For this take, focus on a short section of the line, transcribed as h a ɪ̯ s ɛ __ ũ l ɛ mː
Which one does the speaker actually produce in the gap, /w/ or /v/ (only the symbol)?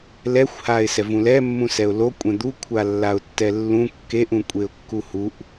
v